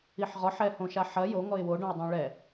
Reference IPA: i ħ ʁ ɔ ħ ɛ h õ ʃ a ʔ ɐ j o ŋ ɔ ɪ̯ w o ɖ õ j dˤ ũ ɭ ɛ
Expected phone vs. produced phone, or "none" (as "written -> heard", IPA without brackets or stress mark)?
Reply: ʔ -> ħ